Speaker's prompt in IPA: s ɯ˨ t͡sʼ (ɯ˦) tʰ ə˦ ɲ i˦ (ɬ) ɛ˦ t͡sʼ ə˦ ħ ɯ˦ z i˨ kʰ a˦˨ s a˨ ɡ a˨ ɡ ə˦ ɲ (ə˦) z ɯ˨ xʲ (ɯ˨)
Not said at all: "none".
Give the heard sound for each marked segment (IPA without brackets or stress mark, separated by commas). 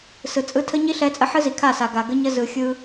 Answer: ɯ˦, ɬ, ə˦, ɯ˦